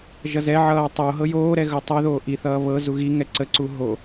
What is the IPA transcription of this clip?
ʒ ʌ z ɛ ʕ ʌː tˤ o ɦ ɤ j oː ɾ ɛ ɣ ɤ tˤ ɛ ð oː ʔ i θ ʌː β ɤ z u ɣ i ŋ ɛ ǀ ə ǀ u ɦ o

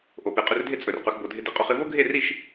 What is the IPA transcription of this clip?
ʔ o˨ p e˨ qʼ ʏ˧ r dʱ e˦ t͡sʼ ɵ˨ r q ɵ˧ x b o˧ dʱ ɪ˧ d ɪ˧ qʼ o˧ χ ɪ˧ v o˦ ɡʱ e˦˨ r i˦˨ ʃ

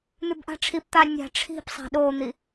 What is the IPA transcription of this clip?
n̪ ʉ b ʔ a̤ ʈ͡ʂʰ i p t̪ a nʲ a̤ ʈ͡ʂʰ i̤ p sˤ a̤ ɗ o n̪ i

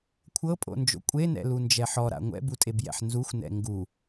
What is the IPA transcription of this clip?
kʷʰ ɤ pʼ o̰ n d͡ʒ o̰ kʷʼ e n ɛ̰ l u n d͡ʒ ɛ ħ ɔ ɾ a̰ ŋʷ ɛ̰ b u tʼ e b j ɛ̰ ħ n z u xʷ n ɛ̰ ŋ ɡ u

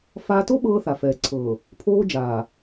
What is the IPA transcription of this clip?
f aː˦ t o˦ ɓ ɤː˦ θ a˨ f ɛː˨ ǀʰ ɤ˨ | pʰ oː˦ d͡ʒ aː˨

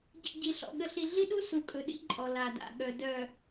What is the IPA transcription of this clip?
ɟ ḭ˨ ɟ i˨ ɬ ɔ̰˨ ɠ ə˨ ɬ i˨ ɮ i˦ ɗ u˦ s u˨ kʼ ɵ˨ ɗ ḭ˦ ǃʼ ɔ˨ l a˨ d a̰˨ ɠ œ˨ d œ˨

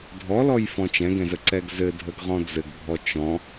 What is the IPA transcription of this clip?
dʱ ɔ l ɔ j f ɔ̃ t͡ʃ ɛ̃ ɡ ɛ̃ z ə ǀ ɛ ɡ z ɘ dʱ ə ɡ ʁ ɔ̃ d͡z ɘ ɡ bʱ ɔ t͡ʃ ɔ̃

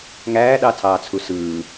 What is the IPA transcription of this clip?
ŋ æː ɗ ɑ tʰ ɑː t͡sʰ u s ɯː

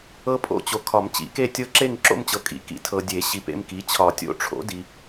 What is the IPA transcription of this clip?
ɤ˦˥ pʼ o̰˥˧ t͡ɕ o˨ kʰ ɒ˨˩˦ m t͡ɕ ḭ˨˩˦ k e˥˧ tʲ ɤ˦˥ ǁ e˥˧ ŋ ǁ o̰˥˧ m t͡ɕ ɤ˨ kʼ ḭ˨ k ḭ˩˥ tʰ ɤ˨ dʲ e˨˩˦ ɕ i˨ p ḛ˥˧ m k i˩˥ t͡ɕʰ ɒ˨˩˦ tʲ o̰˦˥ ʈ͡ʂʰ o̰˩˥ d i˨

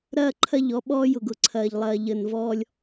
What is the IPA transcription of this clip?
ɾ ɐː˦ ǃʰ ɐ˦˨ ʎ ɔ˦ ɓ ɔː˦ j ʊ˨ ɡ ʊ˨ ǀʰ ɐː˨ ʎ lˠ ɐː˨ ʎ ə˨ n v ɔː˦ lʲ

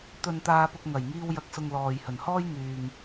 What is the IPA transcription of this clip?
t̪ ɵ˨ n t̪ aː˧ p ʊ˧ k̚ ŋ ɐ˨˩ j ŋ iː˧ w j ɐ˨ k̚ s ʊ˨ ŋ l ɔː˨ j h ɵ˨˩ n h ɔː˥ j ŋ yː˨ ŋ

